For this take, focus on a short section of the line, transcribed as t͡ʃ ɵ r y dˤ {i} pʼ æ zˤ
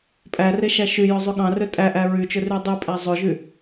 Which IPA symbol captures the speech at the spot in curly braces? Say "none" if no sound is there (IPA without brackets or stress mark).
y